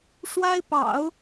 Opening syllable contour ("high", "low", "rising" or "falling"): high